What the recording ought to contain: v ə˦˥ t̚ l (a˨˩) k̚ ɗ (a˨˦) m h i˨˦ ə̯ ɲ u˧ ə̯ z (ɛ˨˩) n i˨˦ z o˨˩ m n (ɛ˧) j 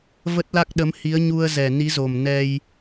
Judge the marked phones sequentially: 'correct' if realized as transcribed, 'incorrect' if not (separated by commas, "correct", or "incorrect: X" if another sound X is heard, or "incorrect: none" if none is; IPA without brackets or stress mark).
incorrect: a˦˥, incorrect: ə˨˦, correct, correct